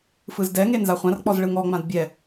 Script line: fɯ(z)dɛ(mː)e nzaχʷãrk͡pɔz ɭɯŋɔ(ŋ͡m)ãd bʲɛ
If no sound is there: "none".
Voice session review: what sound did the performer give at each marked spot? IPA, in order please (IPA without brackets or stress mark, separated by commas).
z, ŋ, ŋ͡m